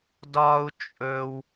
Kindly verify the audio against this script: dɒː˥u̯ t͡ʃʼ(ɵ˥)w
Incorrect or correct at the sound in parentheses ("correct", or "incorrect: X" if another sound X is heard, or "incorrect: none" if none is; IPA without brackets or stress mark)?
correct